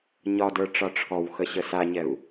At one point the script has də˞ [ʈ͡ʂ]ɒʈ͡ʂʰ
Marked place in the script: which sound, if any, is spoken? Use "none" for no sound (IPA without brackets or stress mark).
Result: ʈ͡ʂ